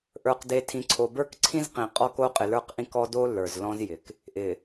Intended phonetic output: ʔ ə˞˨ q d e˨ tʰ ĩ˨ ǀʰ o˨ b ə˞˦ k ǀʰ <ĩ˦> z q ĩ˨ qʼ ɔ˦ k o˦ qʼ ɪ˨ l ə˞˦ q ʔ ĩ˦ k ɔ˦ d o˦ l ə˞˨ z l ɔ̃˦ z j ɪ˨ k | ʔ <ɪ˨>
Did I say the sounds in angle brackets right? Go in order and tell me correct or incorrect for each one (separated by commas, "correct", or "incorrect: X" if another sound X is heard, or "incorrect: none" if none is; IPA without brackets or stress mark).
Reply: correct, correct